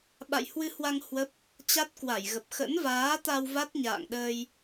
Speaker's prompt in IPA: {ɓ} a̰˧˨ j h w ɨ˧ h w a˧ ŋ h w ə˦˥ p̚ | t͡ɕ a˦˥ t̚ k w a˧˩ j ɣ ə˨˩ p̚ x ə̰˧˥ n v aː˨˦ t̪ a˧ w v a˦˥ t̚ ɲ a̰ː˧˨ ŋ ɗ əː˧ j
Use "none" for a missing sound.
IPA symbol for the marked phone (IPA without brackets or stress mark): ɓ